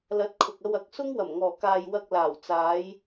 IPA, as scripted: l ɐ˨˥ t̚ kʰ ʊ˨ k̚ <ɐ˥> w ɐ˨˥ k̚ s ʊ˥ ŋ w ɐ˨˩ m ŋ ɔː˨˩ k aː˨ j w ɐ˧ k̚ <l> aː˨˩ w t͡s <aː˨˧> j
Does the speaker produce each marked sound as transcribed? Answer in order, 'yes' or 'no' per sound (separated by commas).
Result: no, yes, yes